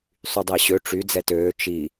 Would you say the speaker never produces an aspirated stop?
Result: yes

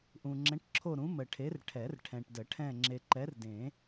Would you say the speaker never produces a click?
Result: no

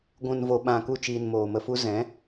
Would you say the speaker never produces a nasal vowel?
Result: no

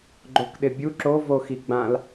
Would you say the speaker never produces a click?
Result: no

